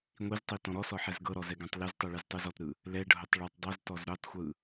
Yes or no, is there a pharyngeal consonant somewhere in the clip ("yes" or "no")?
yes